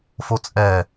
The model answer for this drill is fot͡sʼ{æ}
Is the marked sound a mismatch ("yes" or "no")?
yes